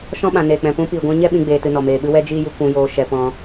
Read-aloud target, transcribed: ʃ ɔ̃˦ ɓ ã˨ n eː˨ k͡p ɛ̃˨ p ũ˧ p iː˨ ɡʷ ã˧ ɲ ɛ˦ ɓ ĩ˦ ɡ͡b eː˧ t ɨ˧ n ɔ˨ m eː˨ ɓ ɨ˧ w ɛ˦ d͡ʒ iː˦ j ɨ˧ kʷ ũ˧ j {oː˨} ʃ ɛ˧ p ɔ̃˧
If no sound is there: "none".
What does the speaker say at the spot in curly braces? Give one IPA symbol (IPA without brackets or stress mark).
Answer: oː˧